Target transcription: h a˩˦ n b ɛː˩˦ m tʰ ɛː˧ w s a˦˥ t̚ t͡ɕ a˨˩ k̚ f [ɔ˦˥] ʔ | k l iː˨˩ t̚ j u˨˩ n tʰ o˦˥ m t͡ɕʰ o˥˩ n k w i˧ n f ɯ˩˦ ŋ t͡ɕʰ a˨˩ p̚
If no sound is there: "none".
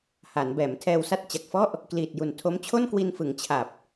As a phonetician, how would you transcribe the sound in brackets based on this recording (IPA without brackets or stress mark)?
ɔ˥˩